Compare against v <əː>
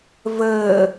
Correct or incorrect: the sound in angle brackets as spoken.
correct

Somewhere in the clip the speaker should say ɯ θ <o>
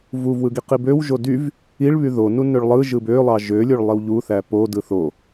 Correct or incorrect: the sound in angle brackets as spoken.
correct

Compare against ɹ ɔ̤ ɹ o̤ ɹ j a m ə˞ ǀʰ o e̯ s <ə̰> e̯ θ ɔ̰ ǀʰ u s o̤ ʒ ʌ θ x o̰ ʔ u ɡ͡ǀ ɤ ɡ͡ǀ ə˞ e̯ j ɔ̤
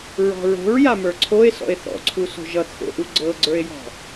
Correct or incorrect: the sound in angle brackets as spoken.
incorrect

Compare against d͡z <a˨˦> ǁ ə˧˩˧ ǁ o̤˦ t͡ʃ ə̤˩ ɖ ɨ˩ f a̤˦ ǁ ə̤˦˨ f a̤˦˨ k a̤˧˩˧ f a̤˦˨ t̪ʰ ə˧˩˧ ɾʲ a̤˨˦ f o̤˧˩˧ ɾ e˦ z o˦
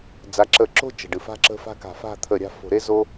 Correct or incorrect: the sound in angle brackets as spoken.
correct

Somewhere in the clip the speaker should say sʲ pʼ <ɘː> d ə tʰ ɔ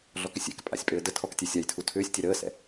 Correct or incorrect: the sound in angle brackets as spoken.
correct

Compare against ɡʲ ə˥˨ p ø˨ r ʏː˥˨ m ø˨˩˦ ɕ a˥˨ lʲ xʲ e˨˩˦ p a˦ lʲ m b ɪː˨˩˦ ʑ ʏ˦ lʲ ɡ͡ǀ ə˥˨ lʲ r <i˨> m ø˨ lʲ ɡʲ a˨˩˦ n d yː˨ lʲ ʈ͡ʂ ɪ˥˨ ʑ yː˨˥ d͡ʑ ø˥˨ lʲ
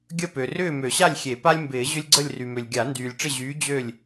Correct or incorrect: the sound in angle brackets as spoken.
incorrect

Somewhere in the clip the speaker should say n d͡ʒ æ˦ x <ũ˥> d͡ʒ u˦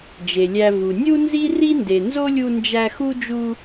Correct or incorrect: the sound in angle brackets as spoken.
incorrect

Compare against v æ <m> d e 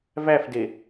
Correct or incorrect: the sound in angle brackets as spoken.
incorrect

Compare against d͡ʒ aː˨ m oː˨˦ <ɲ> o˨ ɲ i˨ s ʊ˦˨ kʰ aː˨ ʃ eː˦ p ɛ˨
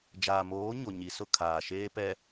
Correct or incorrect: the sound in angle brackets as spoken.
correct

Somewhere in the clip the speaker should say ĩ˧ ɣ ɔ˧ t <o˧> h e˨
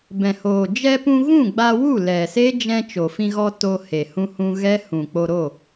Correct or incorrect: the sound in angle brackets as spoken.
correct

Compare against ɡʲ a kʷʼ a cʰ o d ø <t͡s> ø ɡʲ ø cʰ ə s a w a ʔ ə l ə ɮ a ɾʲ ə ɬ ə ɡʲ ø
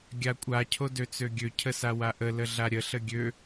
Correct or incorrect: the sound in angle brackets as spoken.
correct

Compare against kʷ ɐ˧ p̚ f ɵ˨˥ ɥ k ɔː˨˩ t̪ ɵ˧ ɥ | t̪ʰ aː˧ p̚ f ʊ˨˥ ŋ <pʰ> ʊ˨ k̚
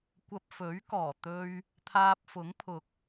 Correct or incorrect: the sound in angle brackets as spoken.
correct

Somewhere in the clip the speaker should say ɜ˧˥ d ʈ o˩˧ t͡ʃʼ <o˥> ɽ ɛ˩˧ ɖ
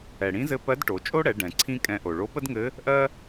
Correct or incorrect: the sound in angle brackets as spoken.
correct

